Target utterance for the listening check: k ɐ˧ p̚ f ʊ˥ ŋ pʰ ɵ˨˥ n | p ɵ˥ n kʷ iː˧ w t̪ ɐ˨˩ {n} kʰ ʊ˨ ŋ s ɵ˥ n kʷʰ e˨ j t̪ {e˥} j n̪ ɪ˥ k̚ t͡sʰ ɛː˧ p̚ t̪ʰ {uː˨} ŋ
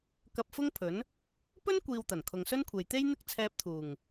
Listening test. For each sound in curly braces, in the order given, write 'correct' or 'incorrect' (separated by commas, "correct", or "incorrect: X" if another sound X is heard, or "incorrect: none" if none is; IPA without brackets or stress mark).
correct, correct, incorrect: uː˨˩